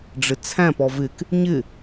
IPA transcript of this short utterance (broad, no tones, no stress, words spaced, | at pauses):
ɖ͡ʐɪt͡sʰæ̃p ɔvɪk | ɲɪ